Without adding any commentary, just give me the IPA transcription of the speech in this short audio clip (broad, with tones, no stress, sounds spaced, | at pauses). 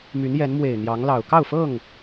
m y˨˦ n j ɛ˨˦ n m w e˨˩ ɪ̯ n̪ j ɑ˨˦ ŋ l ɑ˨˩ ʊ̯ k ɑ˥˨ ʊ̯ f ɤ˥˨ ŋ